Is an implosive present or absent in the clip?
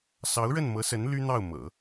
absent